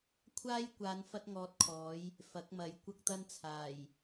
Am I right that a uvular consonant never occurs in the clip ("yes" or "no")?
yes